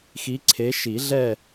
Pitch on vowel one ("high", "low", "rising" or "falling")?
rising